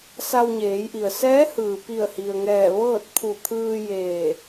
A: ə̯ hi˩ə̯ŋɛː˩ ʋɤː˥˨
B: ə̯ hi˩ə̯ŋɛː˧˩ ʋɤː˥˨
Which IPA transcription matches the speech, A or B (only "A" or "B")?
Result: B